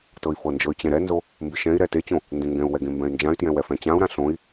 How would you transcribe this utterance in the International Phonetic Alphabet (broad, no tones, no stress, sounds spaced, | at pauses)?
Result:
t ɤ i̯ f ɤ n d͡ʒ ɤ y̯ t͡ɕ ɛ̃ ɾ ɛ n z o | m b ɪ ʃ ɛ̃ i̯ ɾ ɛ t e t͡ɕ õ | n d ẽ ŋ ɡ ɛ̃ u̯ w ɛ ɡ ẽ m b ɛ̃ y̯ n d͡ʒ ã y̯ t j ɛ̃ w ɛ f ɛ̃ t͡ɕ ã u̯ ɾ ã ɬ õ i̯